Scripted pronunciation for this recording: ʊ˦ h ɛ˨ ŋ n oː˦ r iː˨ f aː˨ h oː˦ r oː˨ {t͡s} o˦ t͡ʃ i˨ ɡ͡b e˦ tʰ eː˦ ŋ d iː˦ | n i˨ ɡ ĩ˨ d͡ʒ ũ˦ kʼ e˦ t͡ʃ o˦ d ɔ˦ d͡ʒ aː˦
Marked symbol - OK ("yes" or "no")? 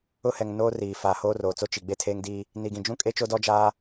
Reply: yes